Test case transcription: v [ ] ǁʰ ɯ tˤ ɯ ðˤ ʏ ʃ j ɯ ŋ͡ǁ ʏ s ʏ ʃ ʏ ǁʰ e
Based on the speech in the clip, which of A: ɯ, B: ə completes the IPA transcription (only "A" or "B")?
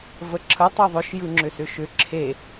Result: B